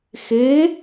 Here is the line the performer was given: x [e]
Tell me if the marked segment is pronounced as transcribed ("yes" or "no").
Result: yes